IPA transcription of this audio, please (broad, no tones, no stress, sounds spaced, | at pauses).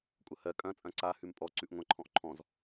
kʷʼ ɐ h ɜ kʼ ɐ̃ t͡sʼ ɐ̃ ǀ a h ʉ m pʼ ɔ ǀ ʉ ʔ ŋʷ ɐ̃ ǃʰ ɔ̃ ʔ ǃʰ ɔ̃ z